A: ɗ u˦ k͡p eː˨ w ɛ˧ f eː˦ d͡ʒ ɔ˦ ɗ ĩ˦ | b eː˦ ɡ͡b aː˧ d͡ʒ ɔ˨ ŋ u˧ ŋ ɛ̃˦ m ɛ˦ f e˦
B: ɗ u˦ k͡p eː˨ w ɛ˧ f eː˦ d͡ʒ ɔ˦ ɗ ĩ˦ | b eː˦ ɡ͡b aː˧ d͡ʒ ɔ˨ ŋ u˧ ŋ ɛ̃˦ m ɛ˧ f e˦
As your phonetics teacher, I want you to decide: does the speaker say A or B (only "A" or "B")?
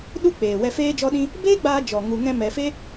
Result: B